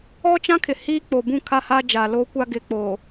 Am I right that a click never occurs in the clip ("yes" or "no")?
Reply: yes